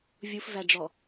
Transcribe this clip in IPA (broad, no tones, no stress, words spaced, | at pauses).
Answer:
vʲufvæɖ͡ʐɔ